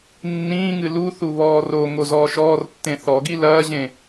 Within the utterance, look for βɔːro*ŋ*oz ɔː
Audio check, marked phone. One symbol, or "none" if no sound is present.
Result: ŋ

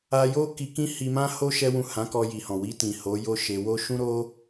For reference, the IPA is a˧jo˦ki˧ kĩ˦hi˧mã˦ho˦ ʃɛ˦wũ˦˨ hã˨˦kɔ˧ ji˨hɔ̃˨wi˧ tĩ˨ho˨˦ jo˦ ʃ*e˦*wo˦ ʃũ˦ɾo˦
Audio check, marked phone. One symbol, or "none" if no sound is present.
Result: e˧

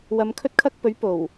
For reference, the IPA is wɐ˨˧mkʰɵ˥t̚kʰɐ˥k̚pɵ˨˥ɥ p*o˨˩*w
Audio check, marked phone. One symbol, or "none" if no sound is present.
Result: o˨˩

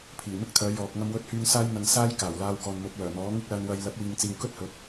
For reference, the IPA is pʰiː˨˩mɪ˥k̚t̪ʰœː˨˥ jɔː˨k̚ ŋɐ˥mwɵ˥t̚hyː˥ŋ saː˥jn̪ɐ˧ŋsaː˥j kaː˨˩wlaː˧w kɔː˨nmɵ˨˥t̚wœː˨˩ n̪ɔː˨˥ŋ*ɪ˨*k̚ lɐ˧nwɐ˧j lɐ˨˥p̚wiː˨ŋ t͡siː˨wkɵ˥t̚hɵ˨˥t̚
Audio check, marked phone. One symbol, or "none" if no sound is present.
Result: ɪ˥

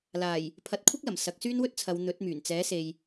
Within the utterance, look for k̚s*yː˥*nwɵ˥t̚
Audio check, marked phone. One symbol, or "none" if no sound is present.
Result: yː˥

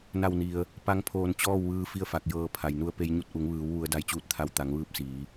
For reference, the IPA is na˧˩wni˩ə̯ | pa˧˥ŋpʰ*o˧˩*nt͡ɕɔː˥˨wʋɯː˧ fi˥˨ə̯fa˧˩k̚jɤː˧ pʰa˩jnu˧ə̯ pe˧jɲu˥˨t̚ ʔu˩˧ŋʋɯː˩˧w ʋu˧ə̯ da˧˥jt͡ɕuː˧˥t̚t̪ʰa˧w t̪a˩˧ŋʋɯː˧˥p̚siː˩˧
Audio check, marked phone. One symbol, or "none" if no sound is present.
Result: oː˧˩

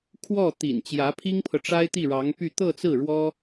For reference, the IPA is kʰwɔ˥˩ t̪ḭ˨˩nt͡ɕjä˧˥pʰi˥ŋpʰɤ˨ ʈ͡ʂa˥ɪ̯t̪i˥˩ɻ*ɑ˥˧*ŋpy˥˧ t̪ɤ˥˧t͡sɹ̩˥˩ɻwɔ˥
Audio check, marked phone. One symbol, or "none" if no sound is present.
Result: ɑ˧˥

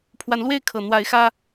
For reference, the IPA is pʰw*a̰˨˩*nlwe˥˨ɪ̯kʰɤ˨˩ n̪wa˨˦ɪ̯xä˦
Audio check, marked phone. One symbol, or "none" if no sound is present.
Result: a˨˦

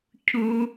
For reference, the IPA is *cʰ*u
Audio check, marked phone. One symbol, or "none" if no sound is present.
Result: cʰ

